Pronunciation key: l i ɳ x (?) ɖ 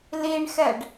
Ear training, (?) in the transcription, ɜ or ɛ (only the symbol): ɛ